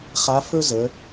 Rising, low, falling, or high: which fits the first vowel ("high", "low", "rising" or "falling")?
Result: rising